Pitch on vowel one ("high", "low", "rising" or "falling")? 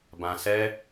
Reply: low